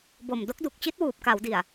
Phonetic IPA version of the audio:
b o˨˩ m d o˦˥ k̚ d u˨˩ k̚ t͡ɕ i˦˥ t̚ w uː˨˩ p̚ k a˩˦ w d i˨˩ a̯

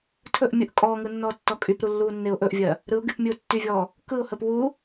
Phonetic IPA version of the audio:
tʰ ɵ ʔ mʲ ɯ ʔ kʼ ɔː ŋ ɯ nː ɔː tː ɔ kʼ y p ɾ u lː uː nː e ʊ̯ ʔ ɵ ʔ vʲ ɜ | ɾ ɯ ʊ̯ ɡ y p mʲ ɯ ʊ̯ tː y vʲ ɔː | k ɯ ʊ̯ h ə p w u

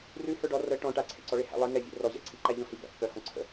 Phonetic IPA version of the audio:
r ʉ h ə˞ ɖ ɔ r ə ʈ ɔ̃ ʈ a ǀʰ ḛ ǀ ɔ ɭ e h æ̰ lˠ i ŋ ɛ vʲ ḛ r ɔ ʑ æ̰ ǀʰ i ǃ æ ʎ ɔ̃ h i b æ̰ pː œ h ɔ̃ ǀʰ ə̰

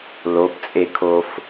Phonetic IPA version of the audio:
l o p t͡sʼ e kʰ o f

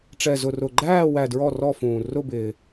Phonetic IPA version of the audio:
ʈ͡ʂ ɛ˧ z ʊ˧ r ʊ˧ ɡ͡ǃ æː˥˧ w æ˧ d ɹ ɔ˥˧ r ɔ˥˧ f ũː˧ r ʊ˥˧ b ɪː˧

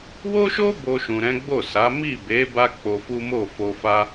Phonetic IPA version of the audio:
w o˦ ʃ o˦ b o˧ ʃ ũ˨ ɾ ɛ̃˨˦ ɡ͡b o˦˨ s a˨˦ m i˦˨ b e˨˦ b a˦ k͡p o˧ f u˦ m o˦˨ f o˧ f a˧

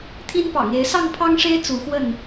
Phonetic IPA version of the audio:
t̪ʰ i˦ n p ɑ̰˨˩ ŋ e˨˦ ɪ̯ s ɑ˥˨ ŋ pʰ ɑ˦ ŋ ʂ e˦ ɪ̯ t͡s u˨˦ x w ə˥˨ n

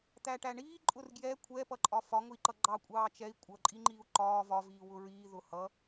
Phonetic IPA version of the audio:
t̪ æ ʈ æ ɳ iː ǃʼ ʊ r ɡ j ɛ kʷʰ ɛ p ʌ ǃʼ ɒ f ɒ ŋ ʊ i̯ ǃ ʌ ɡ͡ǃ ɑ kʷʼ ɑː t͡ʃ ɛ i̯ kʷʼ ʌ ǃʼ i ŋ͡ǃ iː u̯ ǃ ɒː v ɒ v iː w ʊ ɹ iː ð ʊ h ʌ

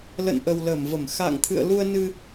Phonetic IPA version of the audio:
l ə̰˧˨ n ʔ ə˨˩ w l ə˧˩ m v ə˧˩ m x a̰˧˨ ŋ t̪ʰ ɨ̰˧˨ ə̯ l u˧ ə̯ n ɨ˧

